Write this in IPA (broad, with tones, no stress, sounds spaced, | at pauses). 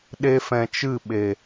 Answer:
ɗ e˧ f ɛ̃˨ t͡ʃ ɨ˦˨ ɓ e˨